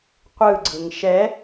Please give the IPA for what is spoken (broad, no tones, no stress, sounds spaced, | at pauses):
qʷ ɯ ɡ͡ǀ ɯ ŋ ʃ ɛ